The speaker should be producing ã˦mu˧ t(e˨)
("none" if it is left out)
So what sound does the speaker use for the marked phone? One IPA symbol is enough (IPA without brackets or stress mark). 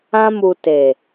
e˨